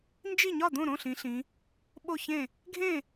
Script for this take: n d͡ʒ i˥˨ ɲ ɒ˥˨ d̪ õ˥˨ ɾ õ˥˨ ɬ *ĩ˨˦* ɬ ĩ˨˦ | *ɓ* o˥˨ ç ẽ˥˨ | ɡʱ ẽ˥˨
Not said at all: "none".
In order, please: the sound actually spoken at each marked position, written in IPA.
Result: ĩ˨˦, ɓ

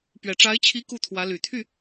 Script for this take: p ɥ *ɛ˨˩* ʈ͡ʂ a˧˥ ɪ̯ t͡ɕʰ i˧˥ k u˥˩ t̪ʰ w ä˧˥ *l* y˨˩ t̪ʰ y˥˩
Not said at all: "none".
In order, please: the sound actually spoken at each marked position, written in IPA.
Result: ɛ˨˩, l

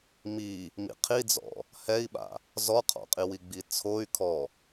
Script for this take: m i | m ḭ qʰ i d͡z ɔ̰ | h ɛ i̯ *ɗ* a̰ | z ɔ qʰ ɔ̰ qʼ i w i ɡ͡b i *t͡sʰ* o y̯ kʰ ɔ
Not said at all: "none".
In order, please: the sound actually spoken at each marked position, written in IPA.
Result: ɓ, t͡sʰ

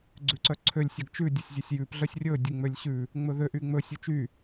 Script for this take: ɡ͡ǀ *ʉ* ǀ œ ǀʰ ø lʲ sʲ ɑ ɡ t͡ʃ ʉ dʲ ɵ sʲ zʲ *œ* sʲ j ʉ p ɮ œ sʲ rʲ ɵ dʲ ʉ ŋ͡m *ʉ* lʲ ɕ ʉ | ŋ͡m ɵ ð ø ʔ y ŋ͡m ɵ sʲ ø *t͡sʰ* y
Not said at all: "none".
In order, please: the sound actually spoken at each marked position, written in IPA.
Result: ʉ, ø, ø, t͡ʃ

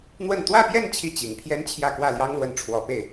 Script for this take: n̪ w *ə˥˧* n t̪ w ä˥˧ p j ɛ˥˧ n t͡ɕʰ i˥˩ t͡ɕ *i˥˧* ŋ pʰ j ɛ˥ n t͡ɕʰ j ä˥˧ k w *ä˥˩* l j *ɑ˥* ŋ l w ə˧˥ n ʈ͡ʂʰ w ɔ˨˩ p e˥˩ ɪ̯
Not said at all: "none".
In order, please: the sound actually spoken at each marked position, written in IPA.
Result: ə˥˧, i˨˩, ä˥˩, ɑ˥

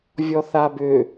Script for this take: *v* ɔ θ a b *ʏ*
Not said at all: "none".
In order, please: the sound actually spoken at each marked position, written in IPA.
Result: vʲ, ʏ

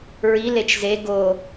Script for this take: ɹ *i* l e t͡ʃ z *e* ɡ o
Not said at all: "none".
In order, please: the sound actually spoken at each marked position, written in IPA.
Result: i, e

